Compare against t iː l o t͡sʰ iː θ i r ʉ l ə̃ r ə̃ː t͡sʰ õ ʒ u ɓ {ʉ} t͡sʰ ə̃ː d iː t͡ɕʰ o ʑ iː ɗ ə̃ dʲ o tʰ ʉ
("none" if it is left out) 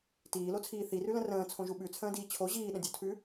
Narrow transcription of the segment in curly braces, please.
ʉ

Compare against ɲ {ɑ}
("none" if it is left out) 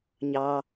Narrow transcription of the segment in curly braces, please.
ɑ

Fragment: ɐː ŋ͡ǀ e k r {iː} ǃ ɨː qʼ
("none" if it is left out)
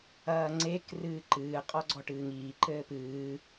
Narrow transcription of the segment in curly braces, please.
ɨː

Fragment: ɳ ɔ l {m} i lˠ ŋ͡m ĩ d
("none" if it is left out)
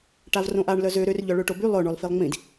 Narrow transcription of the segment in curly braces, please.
f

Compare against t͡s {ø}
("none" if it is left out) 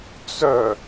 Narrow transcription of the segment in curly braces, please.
œ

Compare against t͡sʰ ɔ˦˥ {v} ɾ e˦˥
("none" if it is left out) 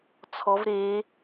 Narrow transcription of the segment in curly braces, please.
v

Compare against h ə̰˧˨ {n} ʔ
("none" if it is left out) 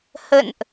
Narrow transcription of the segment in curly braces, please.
n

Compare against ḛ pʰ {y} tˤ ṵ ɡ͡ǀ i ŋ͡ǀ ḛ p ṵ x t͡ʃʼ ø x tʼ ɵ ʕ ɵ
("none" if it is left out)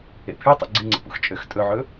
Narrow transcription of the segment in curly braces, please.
y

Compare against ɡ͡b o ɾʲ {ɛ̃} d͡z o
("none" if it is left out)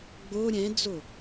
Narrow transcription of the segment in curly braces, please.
ɛ̃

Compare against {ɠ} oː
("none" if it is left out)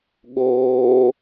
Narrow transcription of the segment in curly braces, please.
ɠ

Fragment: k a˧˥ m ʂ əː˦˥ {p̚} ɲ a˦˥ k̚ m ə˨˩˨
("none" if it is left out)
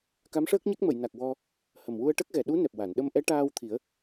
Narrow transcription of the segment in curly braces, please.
k̚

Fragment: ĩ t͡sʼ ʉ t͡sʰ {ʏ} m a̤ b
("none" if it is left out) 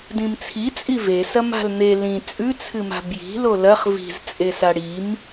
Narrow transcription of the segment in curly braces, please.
ɨ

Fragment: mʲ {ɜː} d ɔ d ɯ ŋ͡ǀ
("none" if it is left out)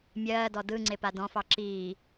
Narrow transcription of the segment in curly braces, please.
ɜː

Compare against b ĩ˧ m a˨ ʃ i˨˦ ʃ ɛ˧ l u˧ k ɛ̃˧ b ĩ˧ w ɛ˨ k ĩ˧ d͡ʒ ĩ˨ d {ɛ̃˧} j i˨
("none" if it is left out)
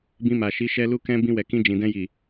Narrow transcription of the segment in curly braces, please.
ɛ̃˧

